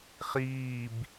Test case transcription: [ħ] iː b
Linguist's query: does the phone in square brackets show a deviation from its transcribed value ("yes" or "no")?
yes